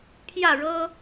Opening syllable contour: falling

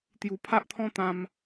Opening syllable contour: low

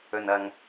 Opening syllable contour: low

